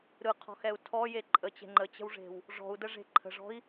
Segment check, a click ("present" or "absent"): present